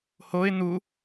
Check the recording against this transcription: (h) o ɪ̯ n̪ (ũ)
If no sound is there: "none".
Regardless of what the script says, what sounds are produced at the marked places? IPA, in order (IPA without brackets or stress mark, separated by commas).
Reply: h, u